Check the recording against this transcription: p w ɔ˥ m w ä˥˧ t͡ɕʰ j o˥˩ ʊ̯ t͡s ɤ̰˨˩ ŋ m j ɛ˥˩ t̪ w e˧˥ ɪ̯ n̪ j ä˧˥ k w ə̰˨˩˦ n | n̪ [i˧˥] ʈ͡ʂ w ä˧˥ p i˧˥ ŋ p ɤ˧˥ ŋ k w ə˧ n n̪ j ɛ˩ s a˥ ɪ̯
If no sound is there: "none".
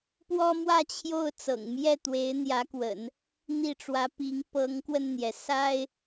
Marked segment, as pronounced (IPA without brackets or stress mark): i˥˩